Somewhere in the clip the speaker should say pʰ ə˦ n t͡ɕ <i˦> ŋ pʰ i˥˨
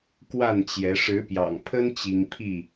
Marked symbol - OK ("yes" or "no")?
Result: yes